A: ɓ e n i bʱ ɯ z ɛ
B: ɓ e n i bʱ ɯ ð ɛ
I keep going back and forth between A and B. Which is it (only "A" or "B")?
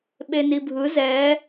A